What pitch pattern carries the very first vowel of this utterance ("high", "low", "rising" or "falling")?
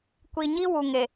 low